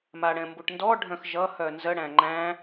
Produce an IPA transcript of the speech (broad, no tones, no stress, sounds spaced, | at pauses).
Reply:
m a ɽ ɛ̃ m b u ʈ n d ɔ ɖʱ œ̃ x ʒ ʌ h œ n z ə ɽ æ̃ ŋ͡ǃ æ̃